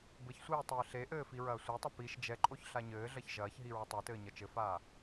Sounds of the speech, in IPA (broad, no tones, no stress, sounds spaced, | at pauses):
b ɘ ç sʷ iː tˤ ɘː ɬ e ʔ ɘː f i ɹ ɐː sʷ ɛ tˤ ɐ p i ʃ d͡ʒ ɛ ǃʼ o ç ɬ a ɲ ɘː ɮ ɐ ç ʒ ɐː ç ɦ i ɹ ɐ tˤ e t ɘː ɲ ɐ t͡ʃ ɘ f aː